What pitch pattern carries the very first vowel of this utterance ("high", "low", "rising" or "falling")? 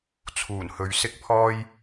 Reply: low